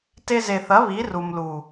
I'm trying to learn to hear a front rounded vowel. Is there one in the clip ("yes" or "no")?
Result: no